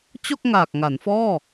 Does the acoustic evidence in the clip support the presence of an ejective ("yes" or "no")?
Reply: no